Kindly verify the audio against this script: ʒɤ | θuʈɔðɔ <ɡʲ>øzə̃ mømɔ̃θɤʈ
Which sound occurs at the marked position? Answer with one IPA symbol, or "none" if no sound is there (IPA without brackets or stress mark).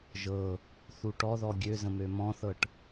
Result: ɡʲ